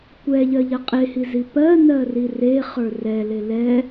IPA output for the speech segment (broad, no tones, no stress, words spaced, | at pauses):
kʷɛʎɜʎɜ qʼehizi pɜnɜri reχə˞ rɛle lɛ